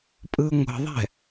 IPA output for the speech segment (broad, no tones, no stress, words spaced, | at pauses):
pʼɯŋʷə̤ðˤɛ̤